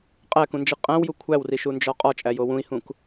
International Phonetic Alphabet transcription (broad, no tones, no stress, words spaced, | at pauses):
qʼækũnd͡ʒi qʼæ̃wju kʷʰæwriʃund͡ʒɒ qʼɒt͡ʃʼæjo wũi̯hũk